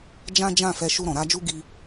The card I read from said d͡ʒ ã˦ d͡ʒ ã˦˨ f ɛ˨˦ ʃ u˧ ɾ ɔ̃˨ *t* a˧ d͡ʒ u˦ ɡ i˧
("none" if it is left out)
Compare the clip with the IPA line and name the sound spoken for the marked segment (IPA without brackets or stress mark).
ɾ